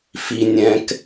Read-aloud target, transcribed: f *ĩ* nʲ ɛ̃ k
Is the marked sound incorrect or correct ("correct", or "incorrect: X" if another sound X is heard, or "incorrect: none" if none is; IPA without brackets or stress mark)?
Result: incorrect: i